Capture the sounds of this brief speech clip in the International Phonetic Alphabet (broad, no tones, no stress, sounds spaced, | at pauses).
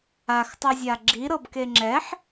a x tˤ ɯ zʲ a ɡ͡ǁ i ɾ ɤ b k e ŋ͡ǁ ɛ ħ